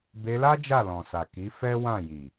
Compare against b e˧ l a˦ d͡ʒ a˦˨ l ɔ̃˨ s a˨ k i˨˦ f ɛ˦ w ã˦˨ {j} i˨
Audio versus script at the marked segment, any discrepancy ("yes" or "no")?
no